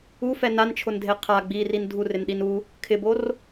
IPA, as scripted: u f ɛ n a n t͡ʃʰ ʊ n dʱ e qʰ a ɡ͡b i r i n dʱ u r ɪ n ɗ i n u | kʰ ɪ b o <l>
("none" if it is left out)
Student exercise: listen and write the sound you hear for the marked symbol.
r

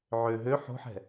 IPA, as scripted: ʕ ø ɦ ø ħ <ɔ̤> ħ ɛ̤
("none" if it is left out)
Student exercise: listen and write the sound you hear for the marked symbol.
o̤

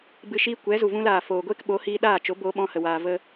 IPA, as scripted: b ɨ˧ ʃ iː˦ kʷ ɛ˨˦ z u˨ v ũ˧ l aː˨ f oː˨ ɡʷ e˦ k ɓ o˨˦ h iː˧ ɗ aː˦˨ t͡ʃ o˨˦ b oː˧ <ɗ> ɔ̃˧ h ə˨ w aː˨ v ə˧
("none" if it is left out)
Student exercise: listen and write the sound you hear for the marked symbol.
ɓ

